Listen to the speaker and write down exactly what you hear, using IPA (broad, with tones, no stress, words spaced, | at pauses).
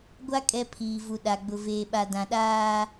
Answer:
ɡʷa˦ kʼɛ˦ pʰiː˨vu˨ ɗa˨ɡ͡bʊ˨veː˨ɓa˨ dã˨ɗaː˦